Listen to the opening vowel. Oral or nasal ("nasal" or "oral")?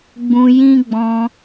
nasal